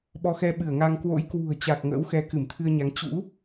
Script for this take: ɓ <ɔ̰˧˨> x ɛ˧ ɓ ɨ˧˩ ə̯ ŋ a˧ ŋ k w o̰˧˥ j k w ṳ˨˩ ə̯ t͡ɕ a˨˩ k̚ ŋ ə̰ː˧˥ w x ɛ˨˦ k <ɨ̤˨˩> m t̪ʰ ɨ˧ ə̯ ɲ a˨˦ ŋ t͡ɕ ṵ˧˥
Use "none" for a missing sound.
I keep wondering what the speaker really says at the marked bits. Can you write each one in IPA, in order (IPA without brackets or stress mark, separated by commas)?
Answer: ɔ˧, ɨ˧˩